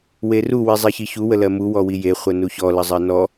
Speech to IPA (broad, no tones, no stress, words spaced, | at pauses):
weru wizˤiçiçu wəlɜmu wɔwije χʷənuçɔ ləzˤɜnɔ